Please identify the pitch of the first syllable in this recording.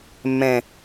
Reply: high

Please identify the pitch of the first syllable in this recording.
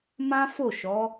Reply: high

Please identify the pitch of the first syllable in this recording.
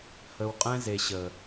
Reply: low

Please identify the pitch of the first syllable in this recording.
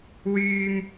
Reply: high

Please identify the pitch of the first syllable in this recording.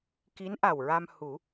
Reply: rising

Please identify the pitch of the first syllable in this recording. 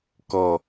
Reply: low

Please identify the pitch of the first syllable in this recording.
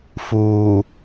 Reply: low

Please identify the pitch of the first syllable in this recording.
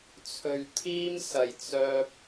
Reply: low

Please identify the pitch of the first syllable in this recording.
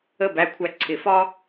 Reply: falling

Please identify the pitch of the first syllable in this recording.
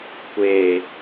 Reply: low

